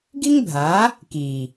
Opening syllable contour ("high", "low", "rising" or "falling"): high